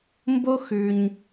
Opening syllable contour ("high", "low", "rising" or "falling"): high